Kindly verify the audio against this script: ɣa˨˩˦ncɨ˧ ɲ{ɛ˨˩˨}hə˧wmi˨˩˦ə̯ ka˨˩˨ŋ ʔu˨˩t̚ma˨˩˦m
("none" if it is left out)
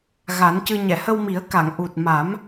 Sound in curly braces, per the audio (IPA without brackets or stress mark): ɛ˨˩˨